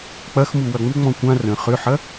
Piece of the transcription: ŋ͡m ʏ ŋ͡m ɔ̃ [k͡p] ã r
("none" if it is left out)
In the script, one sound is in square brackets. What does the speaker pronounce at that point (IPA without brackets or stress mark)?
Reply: kʷ